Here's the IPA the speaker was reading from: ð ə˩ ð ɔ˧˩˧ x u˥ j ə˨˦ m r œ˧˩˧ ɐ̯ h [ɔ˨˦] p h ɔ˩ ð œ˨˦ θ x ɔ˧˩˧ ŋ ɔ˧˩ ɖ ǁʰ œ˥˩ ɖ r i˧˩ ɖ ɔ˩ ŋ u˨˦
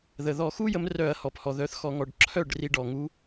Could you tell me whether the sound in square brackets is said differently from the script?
yes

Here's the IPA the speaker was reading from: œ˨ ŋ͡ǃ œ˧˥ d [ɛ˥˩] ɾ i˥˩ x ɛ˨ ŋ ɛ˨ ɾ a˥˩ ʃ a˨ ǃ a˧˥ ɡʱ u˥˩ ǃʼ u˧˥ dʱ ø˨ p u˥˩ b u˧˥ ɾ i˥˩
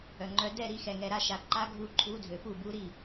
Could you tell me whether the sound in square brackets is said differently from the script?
no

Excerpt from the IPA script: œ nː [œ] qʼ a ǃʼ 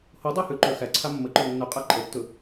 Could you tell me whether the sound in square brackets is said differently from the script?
yes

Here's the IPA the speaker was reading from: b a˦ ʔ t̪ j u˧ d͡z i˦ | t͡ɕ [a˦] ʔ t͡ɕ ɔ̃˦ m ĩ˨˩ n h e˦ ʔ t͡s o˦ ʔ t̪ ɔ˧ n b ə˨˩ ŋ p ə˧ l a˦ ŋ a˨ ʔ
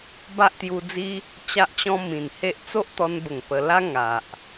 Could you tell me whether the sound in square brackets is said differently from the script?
no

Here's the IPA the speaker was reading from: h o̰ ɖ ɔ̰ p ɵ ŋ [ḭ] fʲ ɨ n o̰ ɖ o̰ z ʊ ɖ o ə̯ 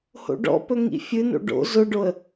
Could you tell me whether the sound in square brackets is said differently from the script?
no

